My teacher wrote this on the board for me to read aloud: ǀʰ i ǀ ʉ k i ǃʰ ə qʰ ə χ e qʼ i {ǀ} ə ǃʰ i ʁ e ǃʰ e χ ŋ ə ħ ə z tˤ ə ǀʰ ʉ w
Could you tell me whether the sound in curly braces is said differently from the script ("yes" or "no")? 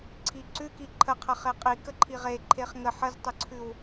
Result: yes